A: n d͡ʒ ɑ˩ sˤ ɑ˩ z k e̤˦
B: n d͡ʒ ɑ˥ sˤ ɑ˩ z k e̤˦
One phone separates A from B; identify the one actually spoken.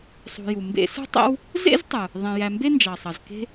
A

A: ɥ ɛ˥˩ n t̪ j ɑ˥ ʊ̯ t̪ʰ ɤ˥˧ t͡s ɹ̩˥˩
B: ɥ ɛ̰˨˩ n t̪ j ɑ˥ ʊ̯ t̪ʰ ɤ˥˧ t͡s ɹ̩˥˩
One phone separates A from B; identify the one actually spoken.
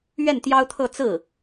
A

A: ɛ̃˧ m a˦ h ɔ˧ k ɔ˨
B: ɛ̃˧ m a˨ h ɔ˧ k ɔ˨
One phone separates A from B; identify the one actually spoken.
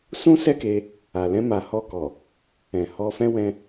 B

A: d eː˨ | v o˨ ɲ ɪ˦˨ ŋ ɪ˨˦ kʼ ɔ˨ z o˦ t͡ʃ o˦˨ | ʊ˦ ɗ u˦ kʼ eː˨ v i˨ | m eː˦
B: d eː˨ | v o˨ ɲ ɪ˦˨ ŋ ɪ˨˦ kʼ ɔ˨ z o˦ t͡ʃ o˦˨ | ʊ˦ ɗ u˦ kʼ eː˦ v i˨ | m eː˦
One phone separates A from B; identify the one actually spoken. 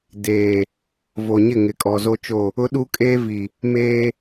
B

